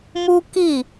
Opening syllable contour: high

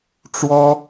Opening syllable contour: high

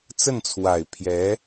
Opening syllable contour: falling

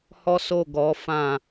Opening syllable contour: high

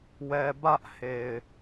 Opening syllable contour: low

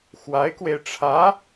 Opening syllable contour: rising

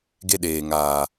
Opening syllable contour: high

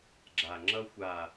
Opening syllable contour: low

